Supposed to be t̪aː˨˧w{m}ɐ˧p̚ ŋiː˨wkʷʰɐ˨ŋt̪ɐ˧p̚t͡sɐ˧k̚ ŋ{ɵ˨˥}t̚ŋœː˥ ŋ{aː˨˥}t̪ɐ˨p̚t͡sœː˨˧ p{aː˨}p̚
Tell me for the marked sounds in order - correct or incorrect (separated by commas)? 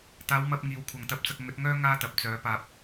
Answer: correct, correct, incorrect, correct